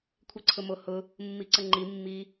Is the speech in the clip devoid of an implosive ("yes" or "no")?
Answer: yes